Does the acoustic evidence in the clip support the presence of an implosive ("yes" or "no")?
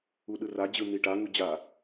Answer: yes